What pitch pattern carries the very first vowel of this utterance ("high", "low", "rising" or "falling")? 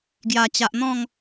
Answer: low